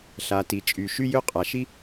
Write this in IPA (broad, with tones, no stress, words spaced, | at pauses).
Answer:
ɬa˩ti˩t͡ʃʼy˩ ʃy˥jø˥qʼa˩ʃi˥